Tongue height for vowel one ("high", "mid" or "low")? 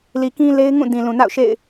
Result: high